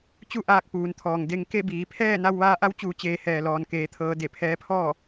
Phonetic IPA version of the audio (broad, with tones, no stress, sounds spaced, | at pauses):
t͡ɕ u˥˨ ʔ aː˧ k̚ p uː˩˧ n t̪ʰ ɔː˩ ŋ d e˧ ŋ k e˥˨ b iː˩˧ pʰ ɛː˥˨ n a˧ w ʋ aː˧ ʔ a˧˥ w t͡ɕ uː˩˧ t͡ɕ eː˩˧ h ɛː˩ l ɔː˩ n k eː˩˧ t̪ʰ ɤː˩˧ d e˧˩ pʰ ɛː˧˥ pʰ ɔː˥˨